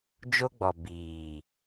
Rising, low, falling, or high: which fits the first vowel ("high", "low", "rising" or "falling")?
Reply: high